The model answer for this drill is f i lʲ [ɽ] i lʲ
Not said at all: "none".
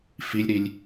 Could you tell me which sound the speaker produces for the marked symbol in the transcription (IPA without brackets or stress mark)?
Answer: ɾ